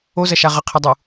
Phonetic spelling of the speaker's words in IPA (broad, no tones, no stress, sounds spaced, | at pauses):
o z ɐ ʃ a ʁ ə qʰ ɐ dˤ u